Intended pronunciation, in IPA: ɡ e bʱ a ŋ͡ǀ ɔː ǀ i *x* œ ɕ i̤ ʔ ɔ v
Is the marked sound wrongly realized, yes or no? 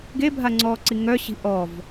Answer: yes